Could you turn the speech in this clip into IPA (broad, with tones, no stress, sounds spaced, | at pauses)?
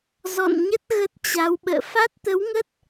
z ɔ̰˧˨ n ɲ ə˦˥ t̚ ɣ ə˦˥ t̚ t͡ɕ a˨˦ w ɓ ə̰ː˧˨ f a˦˥ t̚ t̪ ə˨˦ w ŋ ə˦˥ t̚